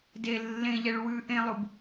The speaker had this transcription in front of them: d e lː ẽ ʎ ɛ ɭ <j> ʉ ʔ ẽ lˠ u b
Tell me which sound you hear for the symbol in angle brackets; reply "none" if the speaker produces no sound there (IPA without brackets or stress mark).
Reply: w